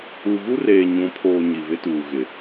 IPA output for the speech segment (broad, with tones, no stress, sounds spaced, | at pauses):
u˨ ɣ u˦ r eː˨ ɲ ũ˨˦ pʰ oː˨ ɲ i˨ β ɪ˦ t uː˨ ɣ ɪ˨